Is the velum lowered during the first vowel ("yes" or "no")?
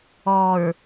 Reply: no